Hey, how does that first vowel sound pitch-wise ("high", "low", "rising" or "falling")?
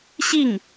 falling